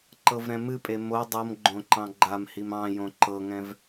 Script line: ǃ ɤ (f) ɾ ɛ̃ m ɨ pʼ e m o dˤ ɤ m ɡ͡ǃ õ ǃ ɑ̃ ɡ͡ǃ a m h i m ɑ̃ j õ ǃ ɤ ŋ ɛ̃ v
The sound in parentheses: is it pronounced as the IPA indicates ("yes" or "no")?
no